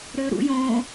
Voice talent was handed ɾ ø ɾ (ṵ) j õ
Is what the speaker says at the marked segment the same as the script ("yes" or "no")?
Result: yes